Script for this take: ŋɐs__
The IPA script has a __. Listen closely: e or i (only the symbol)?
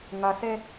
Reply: e